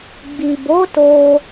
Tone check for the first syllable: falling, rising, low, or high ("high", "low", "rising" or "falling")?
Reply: low